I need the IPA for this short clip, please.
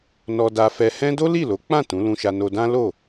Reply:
n ɔ˧ d a˧ f ɛ˧ h ɛ̃˦ d o˦ l i˦˨ l o˨˦ k͡p ã˦˨ t ũ˨˦ l ũ˧ ʃ a˧ n o˧ d ã˦ l o˦˨

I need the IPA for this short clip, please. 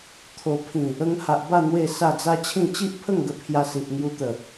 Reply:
t̪ʰ o˨˩ pʰ ĩ˨˩ | ə˧ ŋ h a˨ ʔ b a˥˧ n̪ w e˥˧ s a˥˧ d͡z a˦ t͡ɕʰ ĩ˥˧ t͡ɕ i˦ ʔ pʰ ə˥˧ ŋ ɡ ə˧ pʰ j a˧ s i˨ ʔ ŋ j u˧ t̪ ə˨˩

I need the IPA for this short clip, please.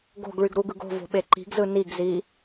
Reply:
ɡ o̤ ɡ ɭ y ɡ ɾ u ɡ ɯ ɡ o̤ v o̤ ɓ e ǃ i̤ ɡ z ɯ n i ɡ z i

